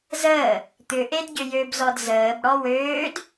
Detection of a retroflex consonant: present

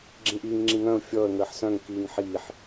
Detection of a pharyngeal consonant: present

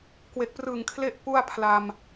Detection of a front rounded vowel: absent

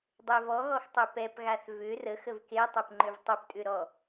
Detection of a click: present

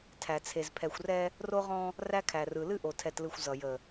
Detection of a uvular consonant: present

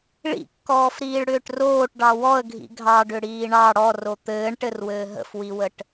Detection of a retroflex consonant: present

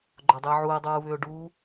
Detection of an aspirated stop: absent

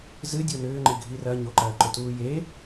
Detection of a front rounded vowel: present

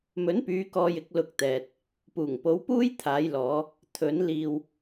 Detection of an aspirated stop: present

